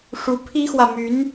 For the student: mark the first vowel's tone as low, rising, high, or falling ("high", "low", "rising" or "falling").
rising